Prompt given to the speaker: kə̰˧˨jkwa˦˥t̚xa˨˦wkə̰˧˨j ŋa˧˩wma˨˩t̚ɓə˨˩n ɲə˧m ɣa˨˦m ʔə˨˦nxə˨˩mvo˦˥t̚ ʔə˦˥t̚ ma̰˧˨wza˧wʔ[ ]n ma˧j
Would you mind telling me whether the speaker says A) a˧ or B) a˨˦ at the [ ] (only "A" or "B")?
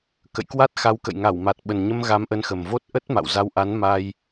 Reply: B